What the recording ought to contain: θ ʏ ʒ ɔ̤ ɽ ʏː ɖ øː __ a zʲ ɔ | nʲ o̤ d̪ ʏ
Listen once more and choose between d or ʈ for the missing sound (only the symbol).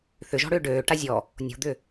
ʈ